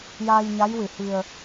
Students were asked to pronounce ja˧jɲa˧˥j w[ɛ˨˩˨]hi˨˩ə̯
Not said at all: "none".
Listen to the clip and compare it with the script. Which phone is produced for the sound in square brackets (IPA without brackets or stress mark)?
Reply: ɨ˨˩˨